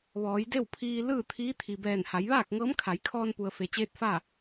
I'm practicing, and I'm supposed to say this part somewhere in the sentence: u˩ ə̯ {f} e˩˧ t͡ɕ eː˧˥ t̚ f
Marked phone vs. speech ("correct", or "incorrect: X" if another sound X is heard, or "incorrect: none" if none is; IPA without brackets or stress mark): correct